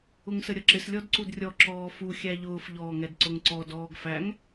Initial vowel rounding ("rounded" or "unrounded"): rounded